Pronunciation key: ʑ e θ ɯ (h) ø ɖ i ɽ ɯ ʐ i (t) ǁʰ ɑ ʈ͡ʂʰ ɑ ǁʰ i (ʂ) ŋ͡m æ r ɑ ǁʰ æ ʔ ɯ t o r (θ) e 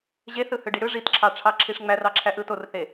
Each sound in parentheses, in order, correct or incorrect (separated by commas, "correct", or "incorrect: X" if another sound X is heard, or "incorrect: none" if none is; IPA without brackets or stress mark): correct, correct, correct, correct